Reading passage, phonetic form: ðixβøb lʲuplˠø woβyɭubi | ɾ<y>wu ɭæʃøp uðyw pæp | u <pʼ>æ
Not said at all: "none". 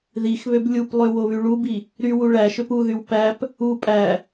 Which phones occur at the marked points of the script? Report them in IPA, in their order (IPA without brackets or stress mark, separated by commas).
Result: y, pʼ